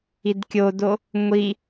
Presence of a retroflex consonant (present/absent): absent